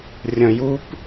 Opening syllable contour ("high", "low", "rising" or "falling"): low